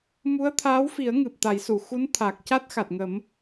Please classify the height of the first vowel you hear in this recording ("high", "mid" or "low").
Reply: high